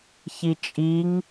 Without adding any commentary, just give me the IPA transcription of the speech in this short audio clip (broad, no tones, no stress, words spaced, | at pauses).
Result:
çit͡ʃʼiŋ